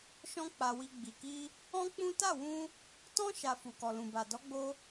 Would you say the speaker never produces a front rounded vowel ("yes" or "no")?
yes